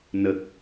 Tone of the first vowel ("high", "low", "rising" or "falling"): low